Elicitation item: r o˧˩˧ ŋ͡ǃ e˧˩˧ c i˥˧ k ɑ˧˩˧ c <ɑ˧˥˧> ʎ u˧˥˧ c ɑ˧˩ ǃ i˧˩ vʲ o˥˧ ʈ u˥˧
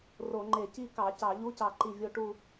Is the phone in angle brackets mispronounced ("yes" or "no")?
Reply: yes